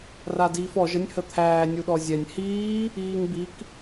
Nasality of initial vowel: oral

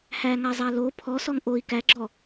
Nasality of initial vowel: oral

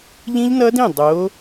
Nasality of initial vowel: nasal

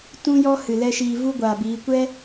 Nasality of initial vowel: nasal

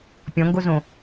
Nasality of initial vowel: nasal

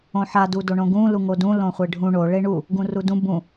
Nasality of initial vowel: nasal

